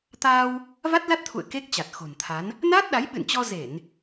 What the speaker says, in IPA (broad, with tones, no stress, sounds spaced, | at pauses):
t̪ aː˧ w | v a˦˥ t̚ l a˦˥ t̚ t̪ʰ ṵ˧˨ ə̯ k e˦˥ k̚ t͡ɕ a˨˩ t̚ x o̤˨˩ n t̪ʰ a˨˦ n | n aː˦˥ t̚ ɗ a˨˦ j ɓ ɨ̰˧˨ n t͡ɕ ɔ˧ z e˧˩˨ n